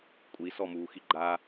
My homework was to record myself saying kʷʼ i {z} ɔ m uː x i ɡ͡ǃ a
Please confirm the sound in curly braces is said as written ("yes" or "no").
no